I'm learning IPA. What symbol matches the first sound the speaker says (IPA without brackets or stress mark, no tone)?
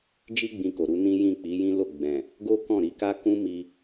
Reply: d͡ʒ